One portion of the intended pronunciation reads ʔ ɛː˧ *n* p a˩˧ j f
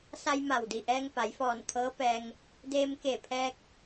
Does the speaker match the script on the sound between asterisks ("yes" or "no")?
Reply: no